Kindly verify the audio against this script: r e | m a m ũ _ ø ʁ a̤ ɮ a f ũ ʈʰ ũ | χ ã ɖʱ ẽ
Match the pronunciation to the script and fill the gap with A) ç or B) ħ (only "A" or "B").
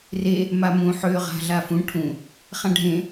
B